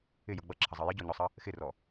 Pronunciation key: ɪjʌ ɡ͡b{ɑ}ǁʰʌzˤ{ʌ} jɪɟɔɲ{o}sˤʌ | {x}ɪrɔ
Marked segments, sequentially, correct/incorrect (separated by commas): incorrect, correct, incorrect, correct